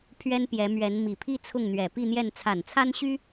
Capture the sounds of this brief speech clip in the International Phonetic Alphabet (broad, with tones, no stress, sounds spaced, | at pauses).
pʰ ɥ ɛ˥ n p j ɛ˧˥ m ɥ ɛ˧˥ n m i˨˩ pʰ i˥ t͡sʰ ʊ˥˩ ŋ n̪ ɥ ɛ˨˩ p i˥˧ n̪ j ɛ˥˩ n t͡sʰ a˨˩ n t͡sʰ a˥ n ɕ y˥